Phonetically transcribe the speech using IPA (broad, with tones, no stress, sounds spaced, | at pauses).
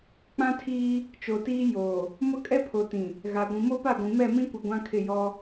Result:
k͡p ã˦ tʰ iː˦ | t͡ʃ o˨ t iː˦ j oː˨ | m ʊ˦ kʼ ɛ˦ pʰ o˨ t ĩ˨ | ɣ a˨ ɡʷ ĩ˨ m o˦ p a˦˨ ɡʷ ĩ˨ m ɛ˦˨ m ĩ˦ kʷ e˨ ɡʷ ã˦ kʰ ɪ˦˨ j ɔ˦